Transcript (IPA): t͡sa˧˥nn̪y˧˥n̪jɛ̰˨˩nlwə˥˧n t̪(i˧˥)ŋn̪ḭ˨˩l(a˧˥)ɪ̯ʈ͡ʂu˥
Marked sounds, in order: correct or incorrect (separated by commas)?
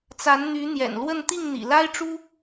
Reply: incorrect, incorrect